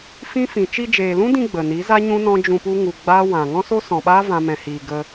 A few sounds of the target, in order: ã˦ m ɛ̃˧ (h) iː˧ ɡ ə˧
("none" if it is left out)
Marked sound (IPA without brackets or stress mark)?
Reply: h